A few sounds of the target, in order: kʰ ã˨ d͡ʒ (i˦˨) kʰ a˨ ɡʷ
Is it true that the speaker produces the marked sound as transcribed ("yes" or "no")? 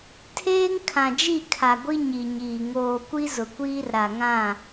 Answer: yes